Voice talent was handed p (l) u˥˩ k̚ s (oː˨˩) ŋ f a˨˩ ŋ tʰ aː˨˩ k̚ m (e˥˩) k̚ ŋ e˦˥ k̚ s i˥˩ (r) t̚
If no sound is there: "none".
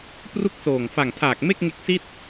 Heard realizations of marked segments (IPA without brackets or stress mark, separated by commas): r, oː˨˩, e˥˩, none